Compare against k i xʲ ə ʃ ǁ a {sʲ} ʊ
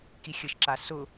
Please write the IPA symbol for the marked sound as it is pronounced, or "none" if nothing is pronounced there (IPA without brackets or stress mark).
s